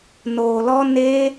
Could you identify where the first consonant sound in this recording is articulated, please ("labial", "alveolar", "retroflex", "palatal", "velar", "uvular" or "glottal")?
alveolar